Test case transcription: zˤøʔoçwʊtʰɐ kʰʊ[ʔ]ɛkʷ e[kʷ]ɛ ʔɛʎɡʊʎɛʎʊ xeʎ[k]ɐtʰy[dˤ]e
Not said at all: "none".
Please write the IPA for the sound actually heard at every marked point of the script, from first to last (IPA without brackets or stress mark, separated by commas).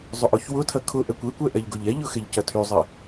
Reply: ʔ, kʷ, c, zˤ